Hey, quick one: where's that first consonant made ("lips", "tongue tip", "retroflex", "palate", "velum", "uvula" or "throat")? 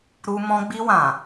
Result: tongue tip